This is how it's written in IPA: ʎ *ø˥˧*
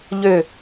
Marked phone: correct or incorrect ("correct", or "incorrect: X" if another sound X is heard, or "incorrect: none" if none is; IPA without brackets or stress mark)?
incorrect: ø˧˩